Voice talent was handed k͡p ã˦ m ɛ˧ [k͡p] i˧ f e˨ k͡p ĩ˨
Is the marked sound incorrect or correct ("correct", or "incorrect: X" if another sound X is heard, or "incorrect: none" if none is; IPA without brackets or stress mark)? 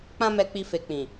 correct